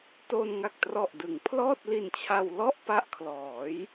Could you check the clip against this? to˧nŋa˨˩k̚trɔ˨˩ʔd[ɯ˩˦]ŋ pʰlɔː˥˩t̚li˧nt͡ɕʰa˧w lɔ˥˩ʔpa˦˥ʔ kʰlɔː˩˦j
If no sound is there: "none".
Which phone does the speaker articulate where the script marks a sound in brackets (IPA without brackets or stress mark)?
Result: ɯ˩˦